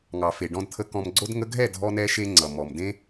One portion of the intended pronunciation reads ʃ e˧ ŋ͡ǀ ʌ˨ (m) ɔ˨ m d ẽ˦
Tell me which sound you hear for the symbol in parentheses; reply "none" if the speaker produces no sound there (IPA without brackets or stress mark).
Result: m